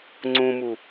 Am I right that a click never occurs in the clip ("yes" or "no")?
no